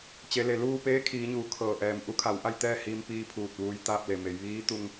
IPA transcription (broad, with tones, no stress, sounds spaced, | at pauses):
t͡ɕ e˩˧ l e˩ l uː˥˨ p eː˧˥ kʰ iː˩˧ ɲ uː˩˧ kʰ ɤː˩ ʔ ɛː˩ m ʔ u˧˥ kʰ a˩˧ w ʔ a˥˨ j t̪ ɛː˥˨ h iː˧ m p iː˧ pʰ uː˧˩ t̚ ʋ uː˧ j t̪ aː˥˨ p̚ l e˧˩ m e˩˧ j ʋ iː˧˥ t̪ u˧ ŋ